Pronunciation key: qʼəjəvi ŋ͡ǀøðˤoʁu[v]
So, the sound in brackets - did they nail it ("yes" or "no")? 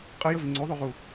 no